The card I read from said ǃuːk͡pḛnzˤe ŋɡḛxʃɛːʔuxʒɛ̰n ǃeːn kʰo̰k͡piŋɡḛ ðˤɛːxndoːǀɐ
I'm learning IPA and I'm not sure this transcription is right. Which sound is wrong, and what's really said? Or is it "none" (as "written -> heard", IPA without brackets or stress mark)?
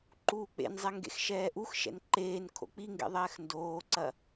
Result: ʒ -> ʃ